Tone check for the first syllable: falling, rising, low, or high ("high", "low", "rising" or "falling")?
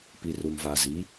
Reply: low